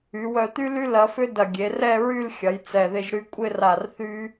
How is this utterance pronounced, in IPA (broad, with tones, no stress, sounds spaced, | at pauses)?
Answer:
y˩˧ w œ˧˩ t̪ y˥ l y˥ l ɐ˧ f ʏ˥ d ɐ˧˩ ɡʲ e˩˧ r ɛ˥˧ ɹ y˥˧ l xʲ ɐ˩˧ j t͡s ɛ˧˩ ð ɪ˥˧ ʒ ɾ y˥ kʷʼ ɪ˥˧ r a˧˩ r θ y˥